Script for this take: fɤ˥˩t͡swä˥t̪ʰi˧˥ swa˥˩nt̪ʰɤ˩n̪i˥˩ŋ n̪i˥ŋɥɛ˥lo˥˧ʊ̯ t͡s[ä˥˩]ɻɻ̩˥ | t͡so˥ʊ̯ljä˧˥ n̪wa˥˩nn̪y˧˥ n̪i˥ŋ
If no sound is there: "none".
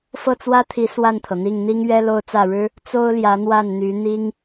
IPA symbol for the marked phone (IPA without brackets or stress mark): ä˥˩